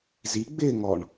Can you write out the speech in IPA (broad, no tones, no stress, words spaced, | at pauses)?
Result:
ziɡ͡bɪːŋɔɳ